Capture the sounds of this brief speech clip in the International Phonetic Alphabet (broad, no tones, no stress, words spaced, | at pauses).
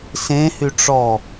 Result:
sẽhy ʈ͡ʂɔ